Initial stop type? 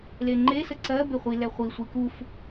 click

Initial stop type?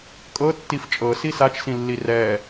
ejective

